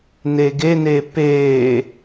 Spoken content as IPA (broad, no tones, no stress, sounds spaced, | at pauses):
n e ɡ e n e p e